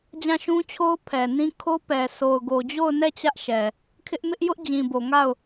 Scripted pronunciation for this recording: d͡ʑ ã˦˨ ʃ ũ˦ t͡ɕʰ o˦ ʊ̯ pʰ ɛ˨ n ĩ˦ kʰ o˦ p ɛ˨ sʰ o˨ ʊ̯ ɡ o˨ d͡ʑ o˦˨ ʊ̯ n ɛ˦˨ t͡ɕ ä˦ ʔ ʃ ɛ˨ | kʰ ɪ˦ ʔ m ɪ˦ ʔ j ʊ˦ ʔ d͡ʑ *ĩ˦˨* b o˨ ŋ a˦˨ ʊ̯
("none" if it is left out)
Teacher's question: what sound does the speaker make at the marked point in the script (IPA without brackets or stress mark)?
ĩ˨